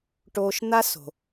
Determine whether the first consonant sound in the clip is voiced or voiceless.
voiceless